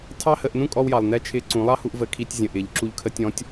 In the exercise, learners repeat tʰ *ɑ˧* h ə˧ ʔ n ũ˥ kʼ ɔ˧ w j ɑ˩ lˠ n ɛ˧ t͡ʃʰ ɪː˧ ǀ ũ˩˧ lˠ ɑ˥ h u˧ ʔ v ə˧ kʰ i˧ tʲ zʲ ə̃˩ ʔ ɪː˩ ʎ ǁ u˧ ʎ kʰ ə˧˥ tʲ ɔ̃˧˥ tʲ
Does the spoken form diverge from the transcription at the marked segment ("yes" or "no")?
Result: yes